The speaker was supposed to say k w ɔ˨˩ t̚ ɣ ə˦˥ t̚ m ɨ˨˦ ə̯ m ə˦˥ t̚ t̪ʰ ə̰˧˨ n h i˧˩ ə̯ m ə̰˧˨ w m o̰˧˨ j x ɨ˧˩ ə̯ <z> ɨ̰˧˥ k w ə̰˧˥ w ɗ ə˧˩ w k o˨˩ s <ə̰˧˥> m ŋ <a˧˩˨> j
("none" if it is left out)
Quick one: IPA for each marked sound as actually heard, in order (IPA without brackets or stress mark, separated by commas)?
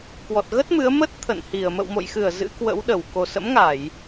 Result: z, ə̰˧˥, a˧˩˨